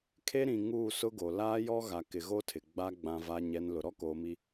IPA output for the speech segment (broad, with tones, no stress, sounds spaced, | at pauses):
kʰ e˦ ɾ ĩ˨ ŋ uː˦˨ s ʊ˦ ɡ o˨ l aː˦ j ɔ˦ ɣ a˨ k ɪ˨ ɣ o˦ tʰ ɪ˨ ɡ͡b a˦ ɡ͡b ã˦ v a˦ ɲ ɛ˦ n l ʊ˨ ɾ ɔ˦ k oː˨ m i˨